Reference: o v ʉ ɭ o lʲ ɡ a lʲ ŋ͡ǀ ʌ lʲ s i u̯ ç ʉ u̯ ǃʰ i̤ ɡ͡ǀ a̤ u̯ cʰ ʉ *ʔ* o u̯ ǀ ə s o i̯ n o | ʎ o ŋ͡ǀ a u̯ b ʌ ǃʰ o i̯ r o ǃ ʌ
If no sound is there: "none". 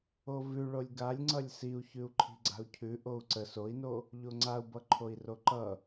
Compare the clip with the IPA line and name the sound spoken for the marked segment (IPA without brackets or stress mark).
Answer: ʔ